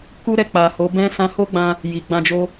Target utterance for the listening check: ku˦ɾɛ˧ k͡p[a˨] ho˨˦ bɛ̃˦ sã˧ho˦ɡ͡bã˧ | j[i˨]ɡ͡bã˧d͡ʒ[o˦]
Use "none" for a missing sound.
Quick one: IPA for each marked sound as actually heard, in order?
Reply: a˨, i˨, o˦

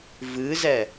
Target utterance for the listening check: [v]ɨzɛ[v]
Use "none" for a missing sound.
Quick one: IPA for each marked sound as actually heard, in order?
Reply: v, none

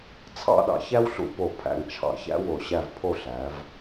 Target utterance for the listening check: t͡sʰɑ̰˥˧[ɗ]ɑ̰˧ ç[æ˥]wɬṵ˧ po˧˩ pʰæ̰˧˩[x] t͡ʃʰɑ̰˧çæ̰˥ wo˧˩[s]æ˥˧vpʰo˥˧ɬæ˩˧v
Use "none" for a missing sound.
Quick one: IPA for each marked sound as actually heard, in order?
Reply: ɗ, æ˥, ŋ, ɕ

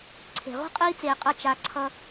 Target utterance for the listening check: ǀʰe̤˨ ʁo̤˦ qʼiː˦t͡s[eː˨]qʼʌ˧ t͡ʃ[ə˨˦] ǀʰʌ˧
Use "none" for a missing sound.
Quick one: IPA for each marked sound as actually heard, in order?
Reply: eː˨, a˨˦

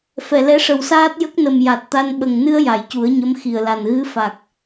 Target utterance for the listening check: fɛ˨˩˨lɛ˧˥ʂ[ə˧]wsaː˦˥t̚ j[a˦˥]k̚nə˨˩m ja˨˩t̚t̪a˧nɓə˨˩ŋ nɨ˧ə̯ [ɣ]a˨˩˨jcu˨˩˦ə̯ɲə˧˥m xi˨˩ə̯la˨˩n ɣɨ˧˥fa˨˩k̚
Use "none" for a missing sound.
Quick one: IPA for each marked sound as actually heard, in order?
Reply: ə˨˩, ə˦˥, j

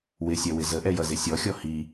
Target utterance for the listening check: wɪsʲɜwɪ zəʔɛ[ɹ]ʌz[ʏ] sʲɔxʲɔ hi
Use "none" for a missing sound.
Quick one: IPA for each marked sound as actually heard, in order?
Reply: j, ɪ

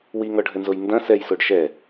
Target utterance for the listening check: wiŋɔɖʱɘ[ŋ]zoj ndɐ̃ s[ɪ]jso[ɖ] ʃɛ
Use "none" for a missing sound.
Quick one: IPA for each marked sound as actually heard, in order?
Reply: n, ɛ, ɖ

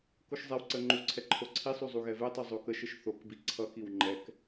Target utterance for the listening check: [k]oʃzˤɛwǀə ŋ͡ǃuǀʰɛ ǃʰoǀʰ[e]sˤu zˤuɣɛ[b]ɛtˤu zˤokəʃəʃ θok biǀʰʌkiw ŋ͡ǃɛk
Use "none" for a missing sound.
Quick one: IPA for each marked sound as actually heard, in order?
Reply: k, i, v

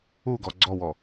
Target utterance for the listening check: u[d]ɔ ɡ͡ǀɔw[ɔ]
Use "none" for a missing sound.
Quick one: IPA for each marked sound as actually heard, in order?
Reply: ɡ, ɔ

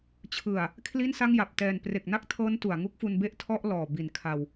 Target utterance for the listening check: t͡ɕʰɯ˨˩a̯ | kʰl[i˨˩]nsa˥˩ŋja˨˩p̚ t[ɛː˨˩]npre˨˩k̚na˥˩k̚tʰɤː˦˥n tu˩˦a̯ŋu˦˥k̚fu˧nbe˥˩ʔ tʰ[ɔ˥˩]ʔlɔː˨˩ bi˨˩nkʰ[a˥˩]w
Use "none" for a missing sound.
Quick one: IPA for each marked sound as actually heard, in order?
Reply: i˥˩, ɛː˨˩, ɔ˥˩, a˧

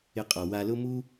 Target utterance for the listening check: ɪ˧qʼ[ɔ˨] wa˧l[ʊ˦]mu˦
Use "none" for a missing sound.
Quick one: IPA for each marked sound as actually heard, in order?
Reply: ɔ˨, ʊ˦

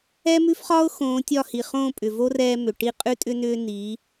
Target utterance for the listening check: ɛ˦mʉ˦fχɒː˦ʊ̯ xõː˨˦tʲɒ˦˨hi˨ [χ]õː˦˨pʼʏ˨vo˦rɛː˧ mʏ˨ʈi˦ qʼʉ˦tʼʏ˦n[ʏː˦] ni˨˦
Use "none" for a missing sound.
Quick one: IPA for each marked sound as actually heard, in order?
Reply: χ, ʏː˦

